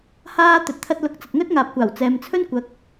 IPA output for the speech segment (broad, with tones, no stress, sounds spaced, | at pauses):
h aː˧ t̪ ɵ˨ t̚ t̪ʰ ɐ˧ t̚ l ʊ˨˥ k̚ t͡s ɐ˨ t̚ ŋ ɵ˥ t̚ ŋ aː˨ p̚ kʷ aː˨˩ w t͡s ɛː˨ m t͡sʰ ɵ˥ n kʷ ɐ˨˥ k̚